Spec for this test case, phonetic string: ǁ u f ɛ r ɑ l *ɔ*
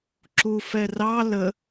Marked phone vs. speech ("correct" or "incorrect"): incorrect